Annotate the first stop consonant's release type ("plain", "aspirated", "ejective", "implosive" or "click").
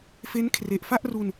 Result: aspirated